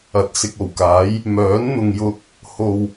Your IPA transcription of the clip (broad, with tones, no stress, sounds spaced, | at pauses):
ɐ˨ t̚ s ɪ˧ k̚ o˨˩ w k aː˨˥ j | m œː˨˥ n n̪ ʊ˨ ŋ j ʊ˧ k̚ | h o˨ w